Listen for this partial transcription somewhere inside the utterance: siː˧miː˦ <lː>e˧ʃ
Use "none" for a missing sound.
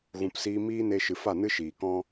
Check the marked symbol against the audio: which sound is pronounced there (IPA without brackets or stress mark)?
n